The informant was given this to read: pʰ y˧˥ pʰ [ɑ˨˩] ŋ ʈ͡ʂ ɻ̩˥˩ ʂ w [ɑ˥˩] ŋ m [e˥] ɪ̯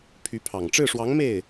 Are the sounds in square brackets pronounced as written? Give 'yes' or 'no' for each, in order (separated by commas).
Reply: yes, no, no